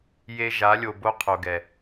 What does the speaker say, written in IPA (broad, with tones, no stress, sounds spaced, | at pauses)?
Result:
j e˦ ʒ a˨˦ lʲ o˨ b o˦ qʰ o˨ ɡ ɛ˨